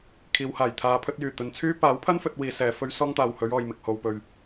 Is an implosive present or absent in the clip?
absent